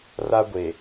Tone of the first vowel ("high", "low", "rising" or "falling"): high